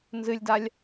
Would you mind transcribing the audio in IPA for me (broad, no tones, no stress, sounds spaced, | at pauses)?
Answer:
n z ɨ lʲ d a lʲ